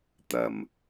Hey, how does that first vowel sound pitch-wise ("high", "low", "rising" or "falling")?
low